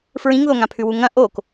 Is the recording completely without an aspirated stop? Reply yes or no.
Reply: no